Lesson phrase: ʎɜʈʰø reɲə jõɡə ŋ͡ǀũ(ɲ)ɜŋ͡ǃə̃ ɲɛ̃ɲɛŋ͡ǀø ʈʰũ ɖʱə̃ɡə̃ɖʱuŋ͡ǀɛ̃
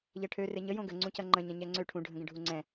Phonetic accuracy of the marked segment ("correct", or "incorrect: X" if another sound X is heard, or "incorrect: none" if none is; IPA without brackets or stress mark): incorrect: c